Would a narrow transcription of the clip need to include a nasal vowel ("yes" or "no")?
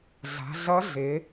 no